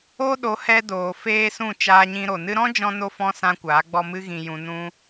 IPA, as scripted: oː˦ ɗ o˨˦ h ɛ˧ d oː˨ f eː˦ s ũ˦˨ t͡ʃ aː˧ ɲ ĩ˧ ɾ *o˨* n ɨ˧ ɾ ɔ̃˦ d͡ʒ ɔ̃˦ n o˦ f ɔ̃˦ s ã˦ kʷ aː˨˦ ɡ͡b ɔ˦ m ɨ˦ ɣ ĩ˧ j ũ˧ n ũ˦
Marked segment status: correct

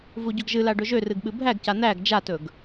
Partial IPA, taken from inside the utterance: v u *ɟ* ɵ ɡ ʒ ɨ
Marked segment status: correct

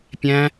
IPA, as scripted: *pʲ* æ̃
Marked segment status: correct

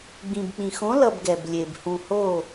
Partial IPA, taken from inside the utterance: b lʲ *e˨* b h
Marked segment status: correct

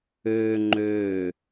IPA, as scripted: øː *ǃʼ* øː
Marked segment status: incorrect: ŋ͡ǃ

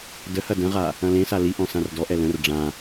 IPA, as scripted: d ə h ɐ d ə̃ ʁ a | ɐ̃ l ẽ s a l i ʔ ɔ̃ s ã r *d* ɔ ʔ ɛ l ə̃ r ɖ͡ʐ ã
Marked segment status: correct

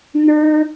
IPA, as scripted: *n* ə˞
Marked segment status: correct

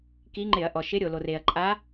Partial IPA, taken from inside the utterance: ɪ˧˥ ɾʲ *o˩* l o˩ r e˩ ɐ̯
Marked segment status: correct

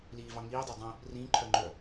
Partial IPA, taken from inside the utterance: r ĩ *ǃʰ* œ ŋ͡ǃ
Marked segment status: correct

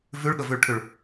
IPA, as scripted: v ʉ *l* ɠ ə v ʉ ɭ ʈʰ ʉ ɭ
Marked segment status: incorrect: ɭ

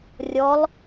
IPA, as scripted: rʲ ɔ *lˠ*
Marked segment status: correct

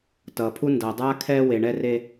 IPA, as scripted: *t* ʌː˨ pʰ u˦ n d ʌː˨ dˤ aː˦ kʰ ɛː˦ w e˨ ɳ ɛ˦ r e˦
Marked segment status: correct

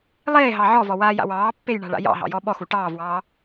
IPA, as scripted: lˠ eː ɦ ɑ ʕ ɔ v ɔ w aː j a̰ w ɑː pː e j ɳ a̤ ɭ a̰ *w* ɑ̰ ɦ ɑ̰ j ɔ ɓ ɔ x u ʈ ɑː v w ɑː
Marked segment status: incorrect: j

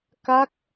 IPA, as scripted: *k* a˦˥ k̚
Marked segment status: correct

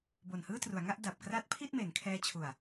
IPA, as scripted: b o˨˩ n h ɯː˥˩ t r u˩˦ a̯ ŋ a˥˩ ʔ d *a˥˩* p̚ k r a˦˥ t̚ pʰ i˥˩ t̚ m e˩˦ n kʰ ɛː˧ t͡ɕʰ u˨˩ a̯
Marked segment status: incorrect: a˨˩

